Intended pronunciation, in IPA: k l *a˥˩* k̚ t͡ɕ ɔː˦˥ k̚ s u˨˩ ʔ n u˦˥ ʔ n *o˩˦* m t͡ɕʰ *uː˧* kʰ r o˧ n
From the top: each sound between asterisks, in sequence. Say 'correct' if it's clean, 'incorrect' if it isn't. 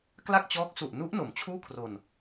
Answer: correct, correct, incorrect: uː˥˩

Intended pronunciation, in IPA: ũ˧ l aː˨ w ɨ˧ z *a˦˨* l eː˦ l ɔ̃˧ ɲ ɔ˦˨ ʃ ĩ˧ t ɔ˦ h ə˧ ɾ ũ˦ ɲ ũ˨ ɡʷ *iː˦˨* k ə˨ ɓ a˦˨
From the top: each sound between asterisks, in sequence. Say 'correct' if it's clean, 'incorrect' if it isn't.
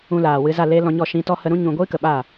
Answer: correct, incorrect: iː˦

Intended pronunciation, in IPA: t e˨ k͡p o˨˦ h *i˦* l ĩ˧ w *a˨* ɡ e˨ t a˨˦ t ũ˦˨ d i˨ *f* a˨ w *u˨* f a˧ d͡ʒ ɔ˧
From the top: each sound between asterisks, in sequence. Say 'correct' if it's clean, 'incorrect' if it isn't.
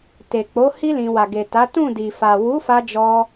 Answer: correct, correct, correct, incorrect: u˨˦

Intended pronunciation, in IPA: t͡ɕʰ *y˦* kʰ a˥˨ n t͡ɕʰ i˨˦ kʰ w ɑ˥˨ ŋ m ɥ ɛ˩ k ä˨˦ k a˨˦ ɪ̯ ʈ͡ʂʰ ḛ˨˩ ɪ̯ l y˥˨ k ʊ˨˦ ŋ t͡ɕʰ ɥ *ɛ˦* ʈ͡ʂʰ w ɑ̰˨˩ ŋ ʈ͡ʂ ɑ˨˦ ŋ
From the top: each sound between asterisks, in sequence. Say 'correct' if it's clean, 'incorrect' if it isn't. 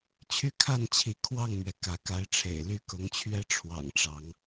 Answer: correct, correct

